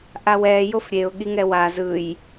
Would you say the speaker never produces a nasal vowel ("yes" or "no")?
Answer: yes